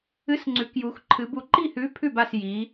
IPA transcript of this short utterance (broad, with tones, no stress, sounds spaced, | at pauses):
ɨ˨˥ s ŋ͡ǀ ʉ˩˧ k j u˩˧ x ǃʰ ɨ˩˧ b u˩˧ ǃ i˥˩ h ʉ˨˥ pʰ ʉ˥˩ b a˥˩ s j i˩˧